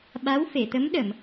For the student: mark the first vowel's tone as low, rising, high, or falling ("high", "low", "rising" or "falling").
rising